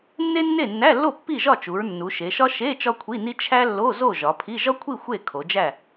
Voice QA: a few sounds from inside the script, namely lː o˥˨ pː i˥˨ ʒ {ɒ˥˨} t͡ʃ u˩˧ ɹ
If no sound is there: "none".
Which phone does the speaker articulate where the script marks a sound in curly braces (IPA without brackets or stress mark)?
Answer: ɒ˥˨